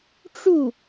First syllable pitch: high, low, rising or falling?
falling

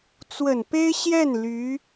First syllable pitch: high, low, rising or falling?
low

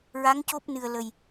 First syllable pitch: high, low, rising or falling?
rising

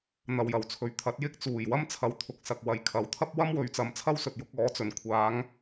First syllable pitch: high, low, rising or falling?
low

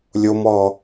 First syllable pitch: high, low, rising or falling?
high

